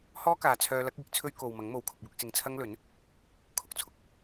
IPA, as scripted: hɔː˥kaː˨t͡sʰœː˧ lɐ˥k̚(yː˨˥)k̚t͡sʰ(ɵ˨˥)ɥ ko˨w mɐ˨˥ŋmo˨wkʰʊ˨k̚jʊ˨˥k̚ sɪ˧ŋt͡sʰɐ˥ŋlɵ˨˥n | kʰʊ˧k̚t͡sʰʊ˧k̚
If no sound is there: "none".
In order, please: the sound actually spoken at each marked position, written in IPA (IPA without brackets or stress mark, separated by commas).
iː˨˥, ɵ˥